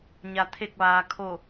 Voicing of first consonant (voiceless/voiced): voiced